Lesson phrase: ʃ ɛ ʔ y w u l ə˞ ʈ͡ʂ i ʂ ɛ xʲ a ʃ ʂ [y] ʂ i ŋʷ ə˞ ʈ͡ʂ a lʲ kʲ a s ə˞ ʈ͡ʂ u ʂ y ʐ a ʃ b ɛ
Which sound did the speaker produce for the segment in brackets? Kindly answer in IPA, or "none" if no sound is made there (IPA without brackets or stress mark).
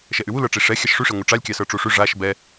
y